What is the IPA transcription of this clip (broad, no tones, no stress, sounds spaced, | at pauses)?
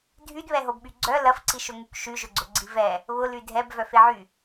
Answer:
dʱ y d β ɛ ɦ o b ɓ y ɡ͡ǀ œ l ɐ f ǀ i ʃ ʊ ŋ y k ʃ y ʒ ʊ ɡ͡ǀ ʊ ɡ͡ǀ i v ɛ | β ʊ l y dʱ ɛ b v œ f e ʕ y